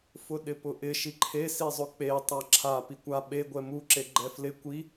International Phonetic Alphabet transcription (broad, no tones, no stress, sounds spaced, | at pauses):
f ʊ ɗ ɪ p ʊ ʔ ɪ ʃ i ǃʰ e s i zˤ ʊ k͡p e tˤ a ǁʰ a p i kʷ a ɓ e ɡʷ ɛ m u ǁ e ɡ͡ǃ ɛ f l ɪ kʷ i